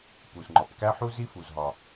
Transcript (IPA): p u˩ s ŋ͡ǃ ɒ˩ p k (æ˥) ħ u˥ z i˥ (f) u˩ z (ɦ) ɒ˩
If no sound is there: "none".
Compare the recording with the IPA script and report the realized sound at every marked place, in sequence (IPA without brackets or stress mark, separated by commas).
æ˥, f, ɦ